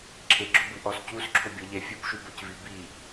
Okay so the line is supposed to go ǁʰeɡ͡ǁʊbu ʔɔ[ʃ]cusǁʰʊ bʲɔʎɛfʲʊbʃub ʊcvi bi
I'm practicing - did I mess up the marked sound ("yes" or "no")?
yes